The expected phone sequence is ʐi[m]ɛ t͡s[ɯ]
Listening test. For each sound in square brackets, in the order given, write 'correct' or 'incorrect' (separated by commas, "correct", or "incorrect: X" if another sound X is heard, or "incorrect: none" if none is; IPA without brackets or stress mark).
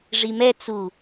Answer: correct, incorrect: u